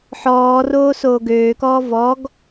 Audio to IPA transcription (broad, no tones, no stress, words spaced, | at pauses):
ħɔːroː soːɡøːkɔː vɔɡ